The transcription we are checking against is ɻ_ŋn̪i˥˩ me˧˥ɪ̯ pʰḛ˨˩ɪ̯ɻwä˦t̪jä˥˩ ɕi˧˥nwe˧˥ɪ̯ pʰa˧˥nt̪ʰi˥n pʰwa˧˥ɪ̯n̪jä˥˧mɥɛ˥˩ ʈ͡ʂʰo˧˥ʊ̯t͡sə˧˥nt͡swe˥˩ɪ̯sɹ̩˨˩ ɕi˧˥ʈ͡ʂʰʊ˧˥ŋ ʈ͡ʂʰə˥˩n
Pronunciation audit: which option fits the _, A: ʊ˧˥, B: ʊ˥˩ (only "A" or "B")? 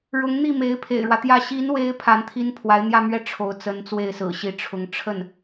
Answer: A